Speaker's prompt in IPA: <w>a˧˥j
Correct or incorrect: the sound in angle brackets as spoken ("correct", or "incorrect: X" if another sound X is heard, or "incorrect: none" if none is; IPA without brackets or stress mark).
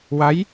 correct